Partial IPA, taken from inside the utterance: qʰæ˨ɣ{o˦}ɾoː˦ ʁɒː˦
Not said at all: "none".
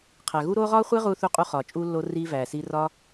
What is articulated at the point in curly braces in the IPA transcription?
u˦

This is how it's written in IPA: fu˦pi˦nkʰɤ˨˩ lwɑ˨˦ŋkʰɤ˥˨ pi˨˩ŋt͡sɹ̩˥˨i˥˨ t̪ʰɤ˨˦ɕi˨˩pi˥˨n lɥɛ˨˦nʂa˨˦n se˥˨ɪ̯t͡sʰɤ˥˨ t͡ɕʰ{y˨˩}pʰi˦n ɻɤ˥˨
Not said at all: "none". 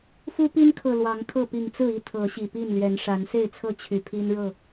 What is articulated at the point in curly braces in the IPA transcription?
y˨˩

